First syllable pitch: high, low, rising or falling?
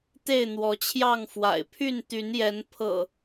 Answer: falling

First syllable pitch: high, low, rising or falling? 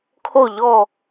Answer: falling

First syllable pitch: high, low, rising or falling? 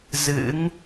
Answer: rising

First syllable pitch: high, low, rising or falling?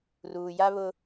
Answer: low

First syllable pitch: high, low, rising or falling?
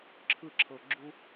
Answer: falling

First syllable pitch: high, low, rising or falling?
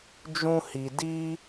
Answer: high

